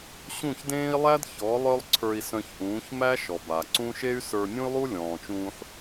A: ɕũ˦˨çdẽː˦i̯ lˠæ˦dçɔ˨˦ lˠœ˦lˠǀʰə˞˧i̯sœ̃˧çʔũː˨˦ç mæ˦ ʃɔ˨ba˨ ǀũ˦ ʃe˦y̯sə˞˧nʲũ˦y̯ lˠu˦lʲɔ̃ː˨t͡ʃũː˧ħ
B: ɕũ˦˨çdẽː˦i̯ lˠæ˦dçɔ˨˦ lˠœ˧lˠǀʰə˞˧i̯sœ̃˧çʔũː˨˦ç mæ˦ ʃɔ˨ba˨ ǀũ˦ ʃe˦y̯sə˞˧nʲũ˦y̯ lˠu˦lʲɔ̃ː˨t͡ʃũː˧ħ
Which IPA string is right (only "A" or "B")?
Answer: A